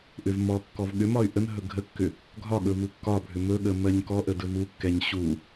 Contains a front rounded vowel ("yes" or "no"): yes